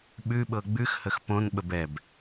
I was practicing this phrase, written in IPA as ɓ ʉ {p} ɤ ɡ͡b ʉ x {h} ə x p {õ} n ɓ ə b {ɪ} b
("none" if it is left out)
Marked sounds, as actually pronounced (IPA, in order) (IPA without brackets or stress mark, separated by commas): ɓ, h, õ, ɛ